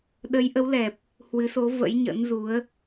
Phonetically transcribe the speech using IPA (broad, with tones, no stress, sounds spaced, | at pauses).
ɗ ə˨˦ j ʔ ə˨˦ w l ɛ˨˩ p̚ | h w ɨ˨˦ s o˨˦ v ə̰˧˥ j ɲ ə̰˧˥ n z u˨˦ ə̯